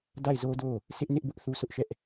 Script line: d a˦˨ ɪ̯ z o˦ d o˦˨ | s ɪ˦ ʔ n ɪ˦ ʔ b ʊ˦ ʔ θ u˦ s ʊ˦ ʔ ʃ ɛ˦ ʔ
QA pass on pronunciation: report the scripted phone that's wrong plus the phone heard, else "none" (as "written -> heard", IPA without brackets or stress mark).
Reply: none